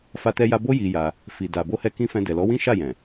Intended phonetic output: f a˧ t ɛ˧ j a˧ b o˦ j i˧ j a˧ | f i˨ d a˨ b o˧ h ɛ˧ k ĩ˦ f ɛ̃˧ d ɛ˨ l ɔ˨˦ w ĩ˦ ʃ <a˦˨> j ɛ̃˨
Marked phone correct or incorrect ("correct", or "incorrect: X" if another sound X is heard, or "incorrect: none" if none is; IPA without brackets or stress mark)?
correct